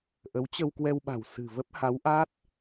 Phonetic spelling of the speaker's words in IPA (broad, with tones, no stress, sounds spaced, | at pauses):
ʔ ə˨˦ w t͡ɕ ə˧ w k w ɛ˧ w ɓ a̤˨˩ w s ɨ̤˨˩ v ə˦˥ p̚ h a˨˦ w ʔ a˦˥ t̚